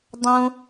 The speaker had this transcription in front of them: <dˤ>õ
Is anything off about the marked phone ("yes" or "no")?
no